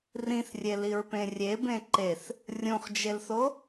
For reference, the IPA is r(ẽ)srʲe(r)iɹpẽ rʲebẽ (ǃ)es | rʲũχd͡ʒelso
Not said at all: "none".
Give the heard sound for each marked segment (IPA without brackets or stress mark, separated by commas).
ĩ, l, ǃ